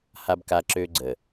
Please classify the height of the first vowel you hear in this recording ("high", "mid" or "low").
low